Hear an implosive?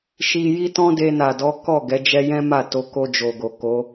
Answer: no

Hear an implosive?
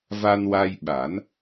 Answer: yes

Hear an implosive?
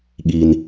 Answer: yes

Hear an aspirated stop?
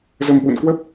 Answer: no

